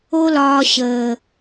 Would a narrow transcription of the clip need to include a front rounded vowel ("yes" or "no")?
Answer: no